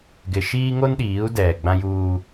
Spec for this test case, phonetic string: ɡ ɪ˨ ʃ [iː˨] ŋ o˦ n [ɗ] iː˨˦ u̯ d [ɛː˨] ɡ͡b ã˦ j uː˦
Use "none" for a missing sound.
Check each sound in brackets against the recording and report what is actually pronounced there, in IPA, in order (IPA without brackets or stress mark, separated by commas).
iː˦, ɗ, ɛː˨